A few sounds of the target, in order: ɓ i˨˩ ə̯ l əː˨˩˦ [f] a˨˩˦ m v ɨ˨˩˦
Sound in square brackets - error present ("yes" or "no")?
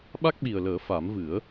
no